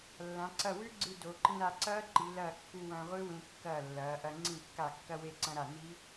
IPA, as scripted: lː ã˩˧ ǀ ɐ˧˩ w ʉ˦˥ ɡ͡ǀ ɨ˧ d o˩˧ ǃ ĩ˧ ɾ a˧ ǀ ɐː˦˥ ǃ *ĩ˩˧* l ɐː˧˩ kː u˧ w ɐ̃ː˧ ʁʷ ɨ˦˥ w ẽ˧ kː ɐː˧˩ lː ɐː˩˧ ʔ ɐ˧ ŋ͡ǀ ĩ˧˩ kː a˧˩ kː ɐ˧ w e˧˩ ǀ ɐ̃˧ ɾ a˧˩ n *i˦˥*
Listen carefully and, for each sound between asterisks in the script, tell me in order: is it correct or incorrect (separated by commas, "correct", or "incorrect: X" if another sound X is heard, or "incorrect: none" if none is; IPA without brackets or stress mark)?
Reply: incorrect: i˩˧, correct